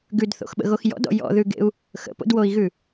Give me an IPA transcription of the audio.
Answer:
ɡ ʉ d θ o̰ x ɓ ə̰ ɣ o x j ɔ̰ d ɔ̰ j ɔ̰ ð ʉ ɡ ḛ u̯ | x ə̰ p o̰ d w o i̯ ɣ ʉ

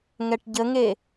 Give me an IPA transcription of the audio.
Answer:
ŋ ɛ ʈ ɟ ə ŋ e

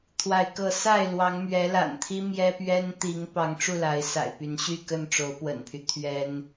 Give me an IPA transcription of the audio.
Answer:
t̪ʰ w a˨˦ ɪ̯ k ɤ˨˦ s a˥˨ ɪ̯ l w ɑ˨˦ ŋ m ɥ ɛ˨˦ l a̰˨˩ n t̪ʰ i˦ m j ɛ˦ p ɥ ɛ˦ n t̪ i˨˦ ŋ p ɑ˨˦ ŋ ʈ͡ʂ u˥˨ l a˨˦ ɪ̯ s a̰˨˩ ɪ̯ p y˨˦ n ɕ y˥˨ k ə˥˨ n ʈ͡ʂ o˨˦ ʊ̯ p w ə̰˨˩ n pʰ y˦ t̪ʰ ɥ ɛ˦ n

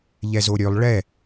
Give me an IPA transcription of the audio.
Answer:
ʎ ɛ z o ɾʲ ø lˠ ɭ ɛ

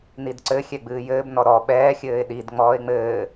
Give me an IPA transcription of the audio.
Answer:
n i d ǀ ɘ xʲ ɛ ɡ͡b ɨː j ɘː b n ɔ ɾ ɔ ɓ ɛː xʲ ɘː ɪ̯ ɗ i d ŋ͡m ɔː ɪ̯ ŋ͡m ɘː

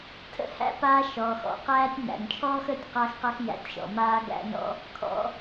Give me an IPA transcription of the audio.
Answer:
tʰ ə̰˥ h æ̰˦ p aː˦ ʃ ɔː˩ x ɔ̰˩ q æː˦ tʲ n æ̰˩ n t͡ʃʰ ɔː˥ x əː˥ tʲ q a˦ x q a˦ x j æ̰˨ tʲ ʃ ɔ̰˩ m aː˦ ɡ æ̰˦ n ɔ̰˥ | kʰ ɔ̰˨

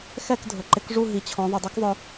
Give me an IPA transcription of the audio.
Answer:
x ɛ˥˨ k dʱ ʊ˩ ǃ ɪ˨˥ k ʐ u˥˨ ɦ i˩ t͡ɕʰ ɔ̃˩˧ ðˤ u˩ dˤ ɛ˦˥ k ðˤ ʊ˩˧

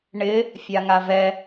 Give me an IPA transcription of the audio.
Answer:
ɳ ɪ | fʲ a ŋ a v ɛ

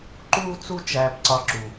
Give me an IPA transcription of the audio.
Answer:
ǃ uː˦ t͡s u˦ t͡ʃ æː˧ p ǀ ɒ˧ ǁ u˨

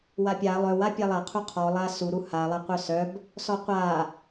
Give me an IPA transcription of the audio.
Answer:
w a pʲ a lˠ œ w a pʲ a lˠ a qʰ u qʰ ɔ lˠ a s u ɾ u h a lˠ a qʷ œ s œ b | s ɔ qʷ a

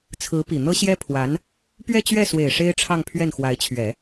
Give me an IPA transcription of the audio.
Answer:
t͡sʰ ɹ̩˧˥ p i˨˩ n̪ ɤ˥ ɕ j ɛ˥ pʰ w a˧˥ n | p ɥ ɛ˥˧ t͡ɕ ɥ ɛ˥˩ s w e˨˩ ɪ̯ ʂ e˥ ɪ̯ ʈ͡ʂʰ ɑ˥˧ ŋ pʰ ɥ ɛ˥˩ n x w a˧˥ ɪ̯ t͡ɕʰ ɥ ɛ˨˩˦

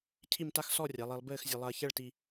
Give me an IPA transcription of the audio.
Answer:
cʰ i˥˧ m t a˥ x s ɔ˥˧ rʲ a˩˧ lˠ i˩˧ lˠ b ɘː˥˧ x zʲ ɐ˧ lˠ ɐː˧ ç ɛ˥˧ ɭ t i˧

